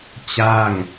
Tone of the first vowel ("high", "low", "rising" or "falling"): falling